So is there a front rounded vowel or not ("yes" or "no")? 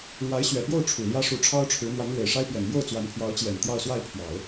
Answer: no